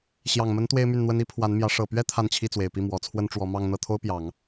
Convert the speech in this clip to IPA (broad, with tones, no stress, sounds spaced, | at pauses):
ɕ j ɑ˨˩ ŋ m ə˧˥ n t̪ w e˥ ɪ̯ m y˥˩ n n̪ w ə˥ n i˥ pʰ w a˧˥ n m j ä˧˥ ʂ ɤ˨˩ p ɥ ɛ˥ t̪ʰ a˥˧ n t͡ɕʰ i˥˩ t͡s w e˨˩ ɪ̯ p i˥˩ m w ɔ˨˩ t͡sʰ w ə˥ n ʈ͡ʂ w ɔ˧˥ m ɑ˥˧ ŋ n̪ ɤ˥˩ t̪ʰ o˥ ʊ̯ p j ɑ˨˩˦ ŋ